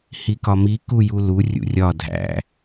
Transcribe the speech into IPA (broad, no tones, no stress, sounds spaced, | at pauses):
h i k ɒ m i k u j u l u rʲ ṵ rʲ ɒ dʱ æ̰